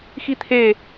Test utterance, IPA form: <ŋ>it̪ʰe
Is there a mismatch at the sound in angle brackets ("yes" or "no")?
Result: yes